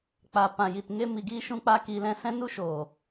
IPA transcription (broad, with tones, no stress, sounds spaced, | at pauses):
k͡p a˨ p ã˨ j i˨ t ŋ e˧ m i˨ ɡ iː˧ ʃ ũ˧ k͡p a˧ k iː˧ l ɛ̃˦ s ɛ̃˦ n u˦ ʃ oː˨